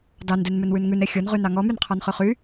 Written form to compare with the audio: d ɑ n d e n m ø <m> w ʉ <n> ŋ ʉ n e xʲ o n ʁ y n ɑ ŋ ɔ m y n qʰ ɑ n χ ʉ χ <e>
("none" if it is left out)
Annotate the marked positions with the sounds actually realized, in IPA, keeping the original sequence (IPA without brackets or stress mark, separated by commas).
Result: n, n, y